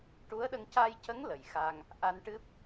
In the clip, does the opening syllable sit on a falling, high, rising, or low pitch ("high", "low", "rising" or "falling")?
rising